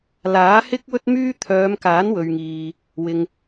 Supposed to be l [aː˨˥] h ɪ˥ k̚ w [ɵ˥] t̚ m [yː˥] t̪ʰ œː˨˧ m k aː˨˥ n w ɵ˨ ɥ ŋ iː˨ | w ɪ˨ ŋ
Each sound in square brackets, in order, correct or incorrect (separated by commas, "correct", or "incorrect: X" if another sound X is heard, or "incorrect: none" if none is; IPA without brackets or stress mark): correct, correct, correct